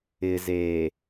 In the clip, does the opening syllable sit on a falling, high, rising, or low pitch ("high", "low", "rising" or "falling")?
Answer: low